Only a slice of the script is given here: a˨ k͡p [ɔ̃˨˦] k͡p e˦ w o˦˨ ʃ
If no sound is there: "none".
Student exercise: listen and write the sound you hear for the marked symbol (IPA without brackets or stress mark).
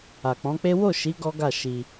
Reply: ɔ̃˨˦